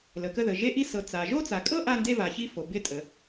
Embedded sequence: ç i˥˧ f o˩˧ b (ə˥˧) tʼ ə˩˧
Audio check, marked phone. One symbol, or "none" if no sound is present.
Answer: ɪ˥˧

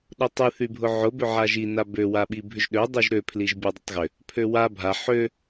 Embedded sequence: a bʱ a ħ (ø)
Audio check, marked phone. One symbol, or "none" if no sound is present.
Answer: ø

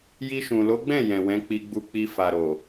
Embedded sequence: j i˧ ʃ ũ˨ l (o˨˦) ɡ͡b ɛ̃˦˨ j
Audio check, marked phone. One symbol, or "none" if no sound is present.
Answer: o˨˦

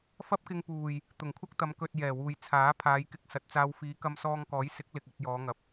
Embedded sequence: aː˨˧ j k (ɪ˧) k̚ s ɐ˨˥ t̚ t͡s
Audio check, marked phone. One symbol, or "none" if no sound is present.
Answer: ɪ˧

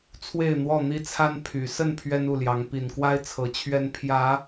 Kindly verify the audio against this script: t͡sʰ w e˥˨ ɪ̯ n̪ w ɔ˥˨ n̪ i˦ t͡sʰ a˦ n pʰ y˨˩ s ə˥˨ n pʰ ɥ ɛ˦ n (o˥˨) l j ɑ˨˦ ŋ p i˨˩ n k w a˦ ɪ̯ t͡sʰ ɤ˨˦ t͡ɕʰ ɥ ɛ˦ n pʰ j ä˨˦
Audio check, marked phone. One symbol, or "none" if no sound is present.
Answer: u˥˨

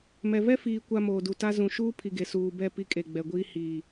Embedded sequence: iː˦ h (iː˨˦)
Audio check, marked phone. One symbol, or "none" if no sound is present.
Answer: iː˨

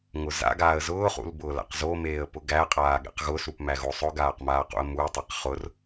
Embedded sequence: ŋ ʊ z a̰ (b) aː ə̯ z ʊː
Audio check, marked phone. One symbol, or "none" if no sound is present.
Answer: ɡ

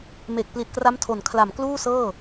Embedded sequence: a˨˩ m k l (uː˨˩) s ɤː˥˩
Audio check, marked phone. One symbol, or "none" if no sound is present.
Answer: uː˥˩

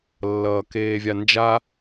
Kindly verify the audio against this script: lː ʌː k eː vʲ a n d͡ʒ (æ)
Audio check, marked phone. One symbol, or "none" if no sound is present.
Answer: a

